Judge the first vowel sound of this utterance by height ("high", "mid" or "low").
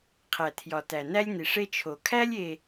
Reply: low